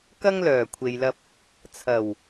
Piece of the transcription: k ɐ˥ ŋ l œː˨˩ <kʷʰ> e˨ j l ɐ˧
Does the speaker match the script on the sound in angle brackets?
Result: yes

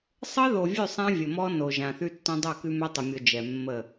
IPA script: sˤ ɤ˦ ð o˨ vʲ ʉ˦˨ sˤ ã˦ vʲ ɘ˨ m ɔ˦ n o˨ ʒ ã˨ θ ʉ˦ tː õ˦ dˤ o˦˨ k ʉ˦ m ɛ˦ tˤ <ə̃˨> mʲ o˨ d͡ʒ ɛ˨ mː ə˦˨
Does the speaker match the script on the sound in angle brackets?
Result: no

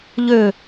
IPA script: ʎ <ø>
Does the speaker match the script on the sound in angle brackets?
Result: yes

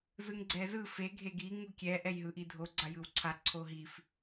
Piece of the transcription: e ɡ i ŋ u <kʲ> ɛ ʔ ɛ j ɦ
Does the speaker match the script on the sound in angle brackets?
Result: yes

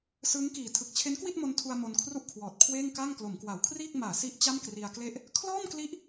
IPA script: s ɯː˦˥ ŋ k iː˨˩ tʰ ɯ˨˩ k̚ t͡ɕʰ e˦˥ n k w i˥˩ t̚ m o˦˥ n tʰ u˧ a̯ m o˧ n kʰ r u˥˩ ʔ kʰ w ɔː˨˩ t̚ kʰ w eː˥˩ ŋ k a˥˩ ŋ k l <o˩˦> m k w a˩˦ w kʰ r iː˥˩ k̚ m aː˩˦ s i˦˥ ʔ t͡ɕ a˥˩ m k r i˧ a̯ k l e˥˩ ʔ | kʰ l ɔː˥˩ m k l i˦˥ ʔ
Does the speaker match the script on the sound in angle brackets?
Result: yes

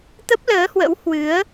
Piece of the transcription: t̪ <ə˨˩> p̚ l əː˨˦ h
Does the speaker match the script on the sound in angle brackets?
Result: no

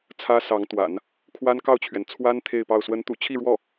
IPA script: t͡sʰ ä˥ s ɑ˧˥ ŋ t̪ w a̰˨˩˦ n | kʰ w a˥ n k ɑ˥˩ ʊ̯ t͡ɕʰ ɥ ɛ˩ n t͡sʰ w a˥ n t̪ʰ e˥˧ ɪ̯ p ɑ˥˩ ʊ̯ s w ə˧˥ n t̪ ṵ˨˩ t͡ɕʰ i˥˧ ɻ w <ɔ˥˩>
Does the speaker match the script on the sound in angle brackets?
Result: yes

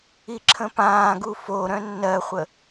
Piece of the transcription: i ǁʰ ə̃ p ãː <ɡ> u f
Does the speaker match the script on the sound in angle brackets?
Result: yes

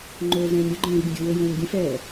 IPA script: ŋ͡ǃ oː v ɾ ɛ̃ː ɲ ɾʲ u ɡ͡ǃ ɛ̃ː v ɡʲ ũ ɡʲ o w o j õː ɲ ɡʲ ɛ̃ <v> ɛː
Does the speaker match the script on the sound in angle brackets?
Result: no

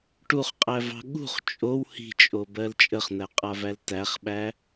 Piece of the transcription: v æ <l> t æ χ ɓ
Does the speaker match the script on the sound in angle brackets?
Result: yes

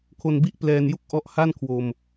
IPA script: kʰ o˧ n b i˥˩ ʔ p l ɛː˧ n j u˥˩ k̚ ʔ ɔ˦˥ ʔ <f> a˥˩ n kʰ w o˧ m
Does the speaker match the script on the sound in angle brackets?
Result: no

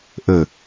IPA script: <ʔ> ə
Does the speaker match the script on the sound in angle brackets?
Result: yes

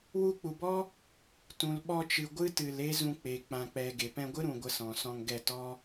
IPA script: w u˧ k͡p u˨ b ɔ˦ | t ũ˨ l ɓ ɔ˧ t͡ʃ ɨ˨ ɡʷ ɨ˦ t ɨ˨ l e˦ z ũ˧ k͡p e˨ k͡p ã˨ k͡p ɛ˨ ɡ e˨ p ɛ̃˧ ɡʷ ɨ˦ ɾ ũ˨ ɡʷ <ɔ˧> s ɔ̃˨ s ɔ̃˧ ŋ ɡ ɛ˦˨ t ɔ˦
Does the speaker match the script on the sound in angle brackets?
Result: no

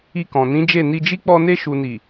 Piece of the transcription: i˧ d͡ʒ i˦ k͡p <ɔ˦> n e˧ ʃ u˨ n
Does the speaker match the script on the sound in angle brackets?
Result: no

